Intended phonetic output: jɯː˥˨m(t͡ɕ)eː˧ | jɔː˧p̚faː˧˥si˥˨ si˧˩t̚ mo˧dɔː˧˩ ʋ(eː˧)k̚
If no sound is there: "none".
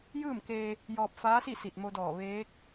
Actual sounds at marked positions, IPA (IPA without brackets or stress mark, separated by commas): k, eː˧˥